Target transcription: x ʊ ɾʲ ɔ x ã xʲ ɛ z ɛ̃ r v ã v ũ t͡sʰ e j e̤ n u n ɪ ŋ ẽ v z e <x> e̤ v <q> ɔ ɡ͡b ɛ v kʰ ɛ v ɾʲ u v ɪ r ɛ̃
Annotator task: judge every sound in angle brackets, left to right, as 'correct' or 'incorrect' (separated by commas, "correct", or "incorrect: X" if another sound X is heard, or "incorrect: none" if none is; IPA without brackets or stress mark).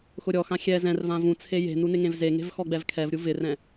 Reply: incorrect: ŋ, incorrect: x